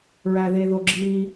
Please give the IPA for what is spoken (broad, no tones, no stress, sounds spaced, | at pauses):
ɹ æ ð e ð o ɡ͡ǁ i